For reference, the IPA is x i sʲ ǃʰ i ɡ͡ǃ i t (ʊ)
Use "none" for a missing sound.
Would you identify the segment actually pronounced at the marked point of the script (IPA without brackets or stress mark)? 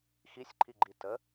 ə